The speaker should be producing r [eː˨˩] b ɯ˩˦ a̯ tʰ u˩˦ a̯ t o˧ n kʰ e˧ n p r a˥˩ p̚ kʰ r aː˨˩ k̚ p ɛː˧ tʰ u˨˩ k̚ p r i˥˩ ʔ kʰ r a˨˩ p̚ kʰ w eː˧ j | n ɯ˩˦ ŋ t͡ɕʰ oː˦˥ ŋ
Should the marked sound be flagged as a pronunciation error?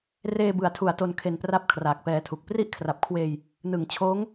yes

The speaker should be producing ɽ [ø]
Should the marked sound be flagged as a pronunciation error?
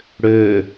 no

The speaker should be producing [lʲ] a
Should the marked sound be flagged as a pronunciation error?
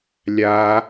no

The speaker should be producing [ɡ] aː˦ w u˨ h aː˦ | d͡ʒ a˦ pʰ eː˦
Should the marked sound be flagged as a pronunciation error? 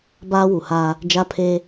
yes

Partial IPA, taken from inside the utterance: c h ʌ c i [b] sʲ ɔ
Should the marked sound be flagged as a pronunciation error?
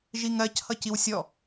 yes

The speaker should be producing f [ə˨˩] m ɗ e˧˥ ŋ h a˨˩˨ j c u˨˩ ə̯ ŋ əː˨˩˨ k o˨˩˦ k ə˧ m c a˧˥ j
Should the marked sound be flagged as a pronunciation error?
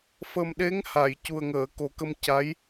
no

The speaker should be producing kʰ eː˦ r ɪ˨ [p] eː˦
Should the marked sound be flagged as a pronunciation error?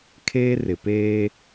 no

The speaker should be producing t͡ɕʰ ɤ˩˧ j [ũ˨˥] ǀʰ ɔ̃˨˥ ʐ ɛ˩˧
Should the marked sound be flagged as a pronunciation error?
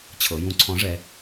no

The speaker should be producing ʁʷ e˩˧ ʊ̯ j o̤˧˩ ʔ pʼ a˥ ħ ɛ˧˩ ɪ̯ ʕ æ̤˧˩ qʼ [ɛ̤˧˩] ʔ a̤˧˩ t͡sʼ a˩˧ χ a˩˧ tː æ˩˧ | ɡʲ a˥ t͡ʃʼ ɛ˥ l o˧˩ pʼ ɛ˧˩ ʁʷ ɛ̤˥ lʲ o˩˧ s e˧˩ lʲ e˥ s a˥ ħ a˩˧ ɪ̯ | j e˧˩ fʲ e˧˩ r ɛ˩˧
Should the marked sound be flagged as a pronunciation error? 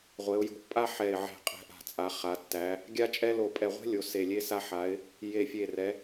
no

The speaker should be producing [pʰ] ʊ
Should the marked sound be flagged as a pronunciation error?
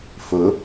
yes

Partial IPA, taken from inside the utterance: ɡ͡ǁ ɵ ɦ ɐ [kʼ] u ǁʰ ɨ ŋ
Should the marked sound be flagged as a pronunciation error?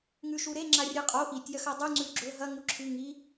yes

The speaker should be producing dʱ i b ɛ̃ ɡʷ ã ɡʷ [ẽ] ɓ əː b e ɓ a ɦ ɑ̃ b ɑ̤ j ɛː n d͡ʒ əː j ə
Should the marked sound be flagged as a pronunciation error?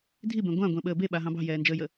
yes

